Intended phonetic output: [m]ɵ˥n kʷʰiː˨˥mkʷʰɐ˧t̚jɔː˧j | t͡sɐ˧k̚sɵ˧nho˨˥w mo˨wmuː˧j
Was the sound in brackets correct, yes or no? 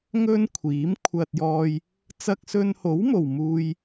no